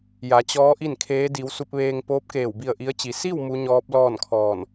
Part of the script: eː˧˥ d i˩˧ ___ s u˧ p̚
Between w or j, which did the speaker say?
w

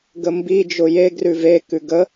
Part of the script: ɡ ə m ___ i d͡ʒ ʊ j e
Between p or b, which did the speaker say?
b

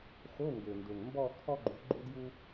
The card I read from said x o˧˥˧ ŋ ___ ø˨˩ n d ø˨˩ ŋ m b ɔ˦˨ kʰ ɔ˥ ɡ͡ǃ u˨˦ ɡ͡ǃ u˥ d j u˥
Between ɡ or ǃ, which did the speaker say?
ɡ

